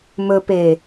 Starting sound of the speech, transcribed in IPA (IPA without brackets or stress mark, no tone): m